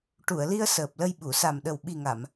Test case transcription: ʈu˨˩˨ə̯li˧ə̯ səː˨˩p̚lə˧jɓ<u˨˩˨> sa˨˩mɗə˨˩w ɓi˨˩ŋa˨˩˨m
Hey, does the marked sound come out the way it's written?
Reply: yes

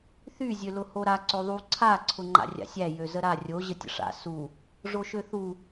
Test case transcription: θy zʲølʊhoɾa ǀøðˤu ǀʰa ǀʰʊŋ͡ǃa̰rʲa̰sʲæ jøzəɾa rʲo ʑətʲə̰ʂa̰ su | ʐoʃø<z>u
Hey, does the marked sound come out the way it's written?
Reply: no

